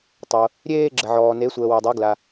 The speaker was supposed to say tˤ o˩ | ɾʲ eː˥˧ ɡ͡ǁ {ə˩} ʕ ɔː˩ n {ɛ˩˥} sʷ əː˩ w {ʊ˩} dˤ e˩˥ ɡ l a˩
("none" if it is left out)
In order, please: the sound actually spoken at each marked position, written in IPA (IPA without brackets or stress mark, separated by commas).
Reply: ə˩, e˩˥, ə˩